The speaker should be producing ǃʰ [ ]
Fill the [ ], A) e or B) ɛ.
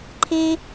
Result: A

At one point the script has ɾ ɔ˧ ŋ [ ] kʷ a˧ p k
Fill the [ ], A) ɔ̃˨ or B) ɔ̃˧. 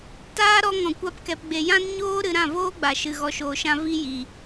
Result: A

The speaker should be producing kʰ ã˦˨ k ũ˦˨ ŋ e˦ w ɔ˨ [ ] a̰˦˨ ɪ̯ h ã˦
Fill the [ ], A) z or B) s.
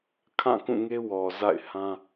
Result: A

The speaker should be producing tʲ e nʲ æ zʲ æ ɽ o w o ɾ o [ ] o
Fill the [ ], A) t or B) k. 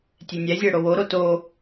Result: A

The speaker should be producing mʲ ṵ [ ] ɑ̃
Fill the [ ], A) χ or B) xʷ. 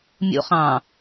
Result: A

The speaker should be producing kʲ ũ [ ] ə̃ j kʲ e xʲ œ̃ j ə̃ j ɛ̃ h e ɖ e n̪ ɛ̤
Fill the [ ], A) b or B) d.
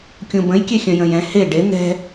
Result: A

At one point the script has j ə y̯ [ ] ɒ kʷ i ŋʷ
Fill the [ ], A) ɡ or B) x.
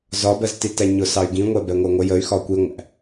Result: B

